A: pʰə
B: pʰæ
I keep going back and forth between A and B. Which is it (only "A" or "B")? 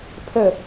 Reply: A